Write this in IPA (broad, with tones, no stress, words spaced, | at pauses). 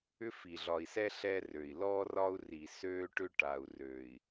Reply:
ʏ˦fi˨ɮɒ˨i̯sɛ˦ ɬɛ˦rø˨i̯ lɔː˦rɒ˦u̯ ri˨søː˦ʈʏ˦ʈa˨u̯ røː˨i̯